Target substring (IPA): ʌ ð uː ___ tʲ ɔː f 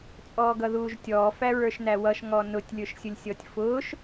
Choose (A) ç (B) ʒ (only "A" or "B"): B